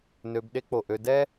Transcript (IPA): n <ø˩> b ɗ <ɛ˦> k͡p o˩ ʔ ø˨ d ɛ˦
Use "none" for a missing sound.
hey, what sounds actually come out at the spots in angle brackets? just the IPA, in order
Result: ø˨, e˦

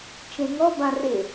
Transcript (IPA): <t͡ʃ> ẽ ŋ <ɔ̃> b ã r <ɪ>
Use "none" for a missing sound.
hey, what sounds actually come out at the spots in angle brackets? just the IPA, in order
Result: t͡ʃ, ɔ, ɪ

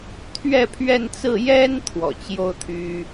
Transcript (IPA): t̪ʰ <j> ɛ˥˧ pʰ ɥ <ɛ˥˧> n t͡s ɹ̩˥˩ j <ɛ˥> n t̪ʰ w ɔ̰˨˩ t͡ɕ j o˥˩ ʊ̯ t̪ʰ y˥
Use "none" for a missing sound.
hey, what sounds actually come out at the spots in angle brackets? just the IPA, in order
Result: ɥ, ɛ˥˧, ɛ˥

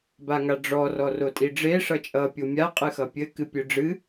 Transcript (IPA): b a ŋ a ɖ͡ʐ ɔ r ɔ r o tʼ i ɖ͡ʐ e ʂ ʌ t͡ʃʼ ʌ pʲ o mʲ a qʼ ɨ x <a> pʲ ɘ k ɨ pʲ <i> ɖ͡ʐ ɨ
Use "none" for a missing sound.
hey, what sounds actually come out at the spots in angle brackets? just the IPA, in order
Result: ʌ, ɨ

